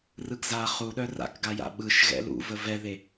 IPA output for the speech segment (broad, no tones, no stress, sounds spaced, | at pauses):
r ɯ ɡ z a χ u ɗ œ r a̰ k ɡ a j a̰ ɓ ɯ ʃ ɣ ɛ̰ l ṵ v ə v ɛ ð e